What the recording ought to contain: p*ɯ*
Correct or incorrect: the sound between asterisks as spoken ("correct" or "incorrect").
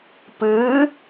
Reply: incorrect